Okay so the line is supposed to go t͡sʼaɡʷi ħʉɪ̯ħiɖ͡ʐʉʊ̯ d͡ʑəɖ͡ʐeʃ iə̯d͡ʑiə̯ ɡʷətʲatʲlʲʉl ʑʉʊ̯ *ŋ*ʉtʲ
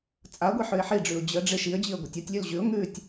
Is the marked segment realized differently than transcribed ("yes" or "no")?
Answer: no